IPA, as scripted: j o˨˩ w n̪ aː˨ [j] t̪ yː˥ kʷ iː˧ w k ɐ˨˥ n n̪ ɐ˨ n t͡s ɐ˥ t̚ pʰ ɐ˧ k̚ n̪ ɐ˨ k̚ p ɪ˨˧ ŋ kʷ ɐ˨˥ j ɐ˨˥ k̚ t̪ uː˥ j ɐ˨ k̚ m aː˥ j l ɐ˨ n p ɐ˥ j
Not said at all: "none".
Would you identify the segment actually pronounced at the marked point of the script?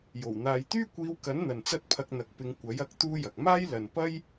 j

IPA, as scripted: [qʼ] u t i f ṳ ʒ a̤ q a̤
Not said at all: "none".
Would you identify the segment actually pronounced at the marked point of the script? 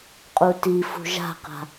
qʼ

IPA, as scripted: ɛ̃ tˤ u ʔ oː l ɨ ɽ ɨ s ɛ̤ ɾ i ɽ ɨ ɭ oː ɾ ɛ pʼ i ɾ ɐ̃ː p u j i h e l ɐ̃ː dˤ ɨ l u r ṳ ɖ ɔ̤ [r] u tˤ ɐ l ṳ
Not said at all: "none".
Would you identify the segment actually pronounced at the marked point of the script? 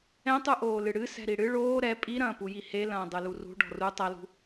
r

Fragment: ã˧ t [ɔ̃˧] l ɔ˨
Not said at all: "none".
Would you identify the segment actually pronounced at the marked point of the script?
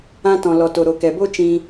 ɔ̃˨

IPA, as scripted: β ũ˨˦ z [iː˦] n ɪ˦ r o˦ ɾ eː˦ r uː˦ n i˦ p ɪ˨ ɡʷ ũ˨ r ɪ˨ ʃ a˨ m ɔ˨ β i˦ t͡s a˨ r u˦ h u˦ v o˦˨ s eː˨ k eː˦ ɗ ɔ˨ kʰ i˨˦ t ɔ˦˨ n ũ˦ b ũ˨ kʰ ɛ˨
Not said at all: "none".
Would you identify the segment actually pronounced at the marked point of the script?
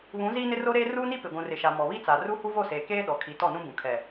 iː˦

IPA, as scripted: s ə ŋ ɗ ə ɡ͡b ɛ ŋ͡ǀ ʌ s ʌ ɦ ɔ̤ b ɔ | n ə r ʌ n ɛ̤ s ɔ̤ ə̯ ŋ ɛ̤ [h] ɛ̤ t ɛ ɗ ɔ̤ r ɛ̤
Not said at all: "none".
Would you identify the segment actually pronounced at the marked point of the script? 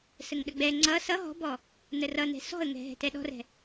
ɦ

